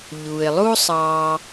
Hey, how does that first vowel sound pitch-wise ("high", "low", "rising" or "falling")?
low